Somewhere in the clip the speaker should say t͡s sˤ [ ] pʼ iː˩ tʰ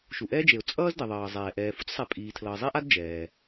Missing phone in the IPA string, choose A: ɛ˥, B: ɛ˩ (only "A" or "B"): B